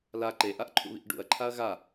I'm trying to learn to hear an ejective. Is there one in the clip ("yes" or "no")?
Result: no